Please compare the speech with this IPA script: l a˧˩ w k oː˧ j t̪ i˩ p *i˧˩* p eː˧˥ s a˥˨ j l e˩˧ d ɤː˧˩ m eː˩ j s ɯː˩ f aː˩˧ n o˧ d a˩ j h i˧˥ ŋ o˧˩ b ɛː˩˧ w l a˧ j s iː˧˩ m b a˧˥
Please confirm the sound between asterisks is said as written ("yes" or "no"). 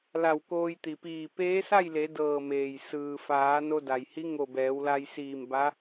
no